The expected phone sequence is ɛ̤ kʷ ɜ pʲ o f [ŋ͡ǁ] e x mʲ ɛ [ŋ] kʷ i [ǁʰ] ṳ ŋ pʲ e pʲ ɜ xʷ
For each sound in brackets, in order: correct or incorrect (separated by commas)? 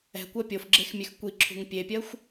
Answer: incorrect, incorrect, correct